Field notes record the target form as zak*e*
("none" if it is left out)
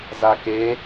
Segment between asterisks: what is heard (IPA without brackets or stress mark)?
e